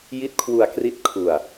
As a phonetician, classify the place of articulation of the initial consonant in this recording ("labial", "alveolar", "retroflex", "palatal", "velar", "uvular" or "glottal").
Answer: palatal